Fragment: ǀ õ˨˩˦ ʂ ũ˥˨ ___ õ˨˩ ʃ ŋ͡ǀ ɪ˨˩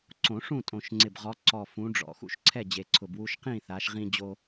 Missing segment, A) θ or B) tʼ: B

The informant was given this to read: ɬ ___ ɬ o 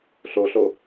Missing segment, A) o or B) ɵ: A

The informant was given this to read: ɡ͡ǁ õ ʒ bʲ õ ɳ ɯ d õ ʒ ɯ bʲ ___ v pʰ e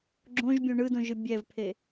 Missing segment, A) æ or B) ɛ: B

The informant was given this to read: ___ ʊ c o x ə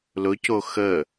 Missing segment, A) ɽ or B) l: B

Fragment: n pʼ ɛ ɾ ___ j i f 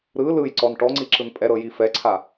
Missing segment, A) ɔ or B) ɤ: B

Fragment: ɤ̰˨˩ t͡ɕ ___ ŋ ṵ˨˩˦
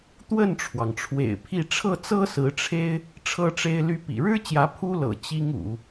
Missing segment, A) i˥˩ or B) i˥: B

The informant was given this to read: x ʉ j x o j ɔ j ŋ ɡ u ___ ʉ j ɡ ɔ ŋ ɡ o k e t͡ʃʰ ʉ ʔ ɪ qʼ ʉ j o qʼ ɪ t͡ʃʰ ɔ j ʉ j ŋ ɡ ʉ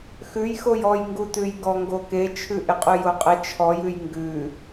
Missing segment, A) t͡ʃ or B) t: B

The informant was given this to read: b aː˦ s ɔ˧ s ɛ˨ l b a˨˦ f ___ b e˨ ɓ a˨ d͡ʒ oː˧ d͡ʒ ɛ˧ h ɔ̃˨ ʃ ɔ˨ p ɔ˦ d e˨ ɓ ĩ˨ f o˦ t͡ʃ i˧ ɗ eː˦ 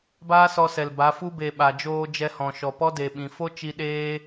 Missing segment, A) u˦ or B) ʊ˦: A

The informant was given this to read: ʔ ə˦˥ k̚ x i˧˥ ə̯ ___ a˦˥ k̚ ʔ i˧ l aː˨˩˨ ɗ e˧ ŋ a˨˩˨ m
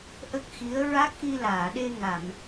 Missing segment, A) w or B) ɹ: B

